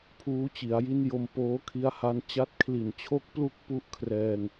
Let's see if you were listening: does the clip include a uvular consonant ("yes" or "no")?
no